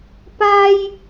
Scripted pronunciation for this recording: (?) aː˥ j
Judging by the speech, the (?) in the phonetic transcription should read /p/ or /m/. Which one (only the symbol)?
p